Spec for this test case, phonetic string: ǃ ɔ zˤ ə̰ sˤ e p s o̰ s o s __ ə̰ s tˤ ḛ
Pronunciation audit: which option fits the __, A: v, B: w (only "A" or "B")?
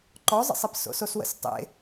B